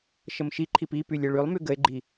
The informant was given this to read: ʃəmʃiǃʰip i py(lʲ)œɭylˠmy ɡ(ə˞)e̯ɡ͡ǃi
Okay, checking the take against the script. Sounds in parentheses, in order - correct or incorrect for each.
correct, incorrect: ə

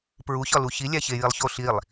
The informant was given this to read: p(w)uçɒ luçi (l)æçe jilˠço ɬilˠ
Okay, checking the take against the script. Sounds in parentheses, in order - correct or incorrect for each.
incorrect: ɹ, incorrect: lʲ

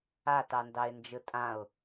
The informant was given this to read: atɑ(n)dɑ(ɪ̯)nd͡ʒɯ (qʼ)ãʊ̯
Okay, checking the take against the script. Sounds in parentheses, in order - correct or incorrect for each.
correct, correct, incorrect: tʼ

